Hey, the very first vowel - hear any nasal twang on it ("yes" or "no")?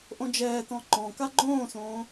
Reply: yes